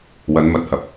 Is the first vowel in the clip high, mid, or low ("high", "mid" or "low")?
low